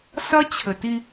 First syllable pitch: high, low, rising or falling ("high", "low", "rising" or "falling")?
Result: high